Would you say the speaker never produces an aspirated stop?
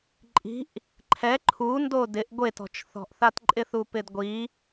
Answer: no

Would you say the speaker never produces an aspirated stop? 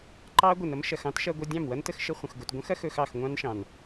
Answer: yes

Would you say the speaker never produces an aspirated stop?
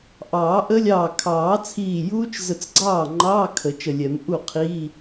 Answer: no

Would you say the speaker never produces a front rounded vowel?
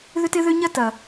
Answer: no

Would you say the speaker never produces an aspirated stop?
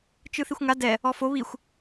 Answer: yes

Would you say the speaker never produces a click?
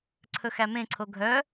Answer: no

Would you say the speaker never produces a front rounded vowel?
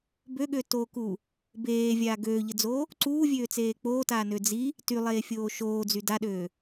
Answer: no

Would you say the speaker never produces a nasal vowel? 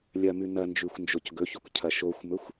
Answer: yes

